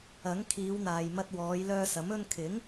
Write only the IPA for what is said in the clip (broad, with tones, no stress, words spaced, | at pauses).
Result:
ɐ˨˥ŋkʰiː˨˧w n̪aː˨jmɐ˧t̚wɔː˨˧j lœː˧sɐ˨˥m ɵ˧nkʰɪ˨˥ŋ